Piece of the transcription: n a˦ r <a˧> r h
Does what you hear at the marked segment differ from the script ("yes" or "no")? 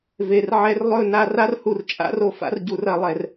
yes